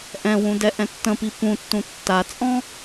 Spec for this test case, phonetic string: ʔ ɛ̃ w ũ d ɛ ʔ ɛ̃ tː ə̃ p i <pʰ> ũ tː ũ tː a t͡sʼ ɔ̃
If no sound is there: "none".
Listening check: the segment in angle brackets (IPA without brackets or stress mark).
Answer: p